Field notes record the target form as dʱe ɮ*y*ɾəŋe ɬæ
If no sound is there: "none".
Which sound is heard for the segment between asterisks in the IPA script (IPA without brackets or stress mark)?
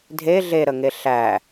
e